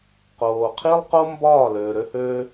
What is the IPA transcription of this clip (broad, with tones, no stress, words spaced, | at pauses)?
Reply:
qoː˨qʰi˦lˠqo˦ mbɒː˦˨løː˨ɾø˦høː˦